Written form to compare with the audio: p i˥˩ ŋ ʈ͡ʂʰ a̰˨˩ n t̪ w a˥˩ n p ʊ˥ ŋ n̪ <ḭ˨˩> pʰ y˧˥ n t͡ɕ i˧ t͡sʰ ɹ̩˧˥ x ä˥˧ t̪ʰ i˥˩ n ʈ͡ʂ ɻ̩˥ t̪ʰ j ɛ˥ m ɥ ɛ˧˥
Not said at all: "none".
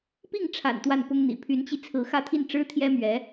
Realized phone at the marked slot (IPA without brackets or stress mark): ḭ˨˩